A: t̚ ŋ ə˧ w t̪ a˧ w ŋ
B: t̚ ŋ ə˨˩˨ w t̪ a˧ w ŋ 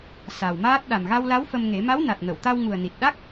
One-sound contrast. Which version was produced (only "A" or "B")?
B